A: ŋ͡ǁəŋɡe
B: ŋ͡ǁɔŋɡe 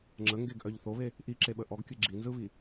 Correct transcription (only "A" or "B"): A